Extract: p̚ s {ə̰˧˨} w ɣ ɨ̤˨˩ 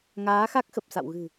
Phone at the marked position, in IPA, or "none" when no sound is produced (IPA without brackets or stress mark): a̰˧˨